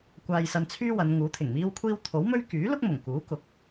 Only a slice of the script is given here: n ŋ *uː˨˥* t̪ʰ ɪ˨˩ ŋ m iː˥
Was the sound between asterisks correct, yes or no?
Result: yes